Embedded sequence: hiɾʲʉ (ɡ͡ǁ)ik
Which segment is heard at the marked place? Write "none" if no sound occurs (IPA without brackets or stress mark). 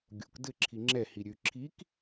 ǁʰ